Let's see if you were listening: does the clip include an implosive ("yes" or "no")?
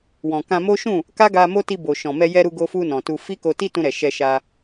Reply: no